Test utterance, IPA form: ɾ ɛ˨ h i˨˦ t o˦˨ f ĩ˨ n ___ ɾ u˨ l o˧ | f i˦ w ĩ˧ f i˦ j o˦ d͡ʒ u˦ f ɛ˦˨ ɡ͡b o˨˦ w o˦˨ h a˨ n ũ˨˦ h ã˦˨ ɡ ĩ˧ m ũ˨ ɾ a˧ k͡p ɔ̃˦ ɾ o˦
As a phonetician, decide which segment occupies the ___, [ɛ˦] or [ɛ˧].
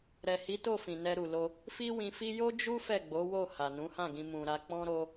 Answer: ɛ˧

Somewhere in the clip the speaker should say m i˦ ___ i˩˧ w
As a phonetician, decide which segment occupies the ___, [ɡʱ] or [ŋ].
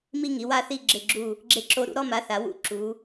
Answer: ŋ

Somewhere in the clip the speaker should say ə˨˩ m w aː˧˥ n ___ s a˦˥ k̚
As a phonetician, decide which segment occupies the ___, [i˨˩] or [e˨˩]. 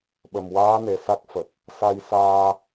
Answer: e˨˩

